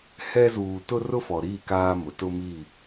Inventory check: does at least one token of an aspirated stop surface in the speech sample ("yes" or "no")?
no